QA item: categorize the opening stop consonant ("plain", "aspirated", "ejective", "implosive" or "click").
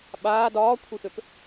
implosive